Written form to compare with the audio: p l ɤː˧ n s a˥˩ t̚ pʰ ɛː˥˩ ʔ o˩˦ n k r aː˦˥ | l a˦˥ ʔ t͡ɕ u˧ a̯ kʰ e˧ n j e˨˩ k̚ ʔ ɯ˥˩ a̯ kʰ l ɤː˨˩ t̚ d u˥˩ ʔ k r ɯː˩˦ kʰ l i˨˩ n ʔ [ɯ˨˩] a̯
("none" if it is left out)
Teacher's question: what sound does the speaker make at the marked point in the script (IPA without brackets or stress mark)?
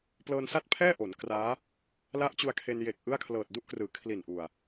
u˨˩